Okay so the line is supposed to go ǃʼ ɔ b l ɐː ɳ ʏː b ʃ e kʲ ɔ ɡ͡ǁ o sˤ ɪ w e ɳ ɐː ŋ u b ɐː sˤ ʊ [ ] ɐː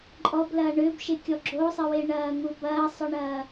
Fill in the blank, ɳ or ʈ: ɳ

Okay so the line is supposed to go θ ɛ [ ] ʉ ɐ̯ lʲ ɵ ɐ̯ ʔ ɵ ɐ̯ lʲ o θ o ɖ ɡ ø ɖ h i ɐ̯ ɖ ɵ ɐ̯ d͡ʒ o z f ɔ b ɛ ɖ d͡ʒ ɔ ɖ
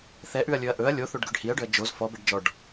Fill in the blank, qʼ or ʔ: ʔ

